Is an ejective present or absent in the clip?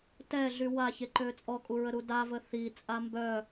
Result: present